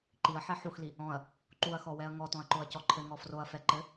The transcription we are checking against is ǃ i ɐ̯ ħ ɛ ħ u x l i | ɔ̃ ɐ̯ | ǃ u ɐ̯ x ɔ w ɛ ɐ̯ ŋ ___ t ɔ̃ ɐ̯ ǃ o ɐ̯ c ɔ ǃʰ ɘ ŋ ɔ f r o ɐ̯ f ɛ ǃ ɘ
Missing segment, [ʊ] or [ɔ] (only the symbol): ɔ